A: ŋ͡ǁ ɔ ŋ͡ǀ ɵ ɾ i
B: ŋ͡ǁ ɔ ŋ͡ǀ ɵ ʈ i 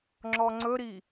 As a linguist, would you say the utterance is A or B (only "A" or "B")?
A